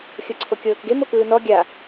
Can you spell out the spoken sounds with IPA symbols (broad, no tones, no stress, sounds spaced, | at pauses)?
xʲ ɤ ǀʰ o kʲ ɤː k ɡ e m o k ɯː n ɔ ɡʲ a